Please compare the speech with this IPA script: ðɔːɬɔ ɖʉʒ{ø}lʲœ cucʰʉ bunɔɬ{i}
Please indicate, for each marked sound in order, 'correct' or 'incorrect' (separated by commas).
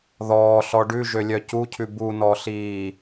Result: correct, incorrect